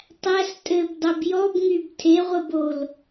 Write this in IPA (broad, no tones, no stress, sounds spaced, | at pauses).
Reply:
tˤ æ s tʼ ɘ b dˤ e b j ɔ b ŋ y b tʰ e ʁʷ ɘ b o l